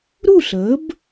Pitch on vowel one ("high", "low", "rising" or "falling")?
falling